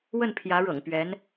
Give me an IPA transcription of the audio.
w ə˥˩ n pʰ j ä˧˥ ɻ ɤ̰˨˩ ŋ p ɥ ɛ˧˥ n

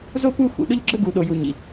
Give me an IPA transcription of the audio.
z o˥ p u˦ x ṵ˩ ɗ ʊ˦ ʎ ɡ͡ǁ ə˦ ɡ u˨ ɗ o˨ j u˨ ɲ ḭ˩

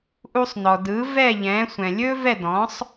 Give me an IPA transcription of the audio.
ʔ u˧ sˤ n ɔ˩ d ɯː˩˥ v ɛː˥˩ ʎ ɛ̃ː˩˥ sʷ ɛ̃˩ lʲ ɵː˥ v ɛ˥˩ d ɔ̃˩˥ sˤ

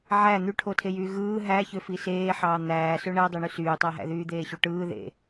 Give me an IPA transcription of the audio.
ʕ æ n̪ y ʈʰ o tʰ e j yː ɣ ɯː ɦ æ ç ø f i s eː ħ ɑː n̪ æː s ø ɳ æ dˤ e ɳ y s yː tˤ æ ɦ æ̰ ð yː d̪ eː ɕ u ʈ ɯː ð ḛ

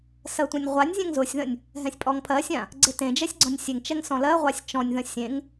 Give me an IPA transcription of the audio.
s ɜ tʷ ɛ̃ nʲ ʁʷ a nʲ zʲ ɛ̃ ŋ z ʊ sʲ ð ə̃ nʲ | ɦ ɛ̃ sʲ pʼ ɔ ŋ pʰ ɜ sʲ ã | ɡ͡ǀ e t ẽ d͡ʒ ɛ sʲ ɡ͡ǀ ɔ̃ nʲ sʲ e ŋ t͡ʃ ɛ ŋ s ɔ̃ l ɜ ʁʷ a sʲ t͡ʃ ɔ̃ nʲ ð ə̃ sʲ ẽ ŋ

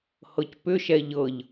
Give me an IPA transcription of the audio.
h ɤ c p ʏ ʃ ɛ ʎ ɤ ʎ

